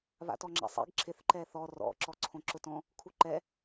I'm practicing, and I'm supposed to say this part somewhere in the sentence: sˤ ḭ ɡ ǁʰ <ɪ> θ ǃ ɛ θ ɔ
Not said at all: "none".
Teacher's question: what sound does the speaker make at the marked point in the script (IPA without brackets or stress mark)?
ɪ